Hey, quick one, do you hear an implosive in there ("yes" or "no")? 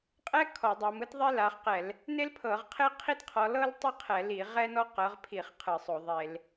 no